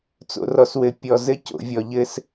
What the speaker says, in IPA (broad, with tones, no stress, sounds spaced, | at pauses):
t͡s o̰˨ r ɔ˨ s w ɘ˨ pʲ ɔ˨ z ɘ˦ c o̰˨ vʲ ɔ˨ ʎ ɘ˦ s